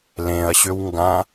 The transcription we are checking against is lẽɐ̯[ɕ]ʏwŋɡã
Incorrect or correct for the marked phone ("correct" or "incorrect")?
correct